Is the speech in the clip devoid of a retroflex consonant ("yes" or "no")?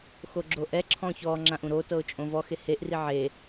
yes